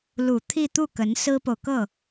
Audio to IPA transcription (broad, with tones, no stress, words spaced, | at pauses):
lu˨˩t̪ʰi˥˧t̪u˥˩ kə˧˥n sɹ̩˥po˨ʊ̯kɤ˥˩